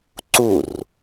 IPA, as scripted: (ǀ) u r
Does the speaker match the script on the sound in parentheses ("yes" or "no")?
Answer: yes